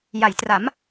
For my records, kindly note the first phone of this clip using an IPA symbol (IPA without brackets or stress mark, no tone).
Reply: j